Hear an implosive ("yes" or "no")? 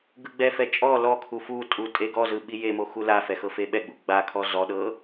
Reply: yes